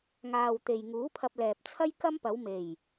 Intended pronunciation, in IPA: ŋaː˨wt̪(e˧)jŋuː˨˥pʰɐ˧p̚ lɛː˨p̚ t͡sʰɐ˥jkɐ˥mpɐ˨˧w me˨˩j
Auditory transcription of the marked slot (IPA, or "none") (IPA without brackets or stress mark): e˨